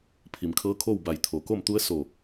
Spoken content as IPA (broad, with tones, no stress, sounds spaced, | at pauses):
pʰ i˩ m kʰ ɤː˧˥ kʰ oː˥˨ w b a˧˩ j t̪ʰ o˩ k o˥˨ m t̪ u˧˥ ə̯ s o˧˩